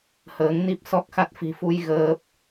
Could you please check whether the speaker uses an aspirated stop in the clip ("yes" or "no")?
no